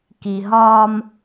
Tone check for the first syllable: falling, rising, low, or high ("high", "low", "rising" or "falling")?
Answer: low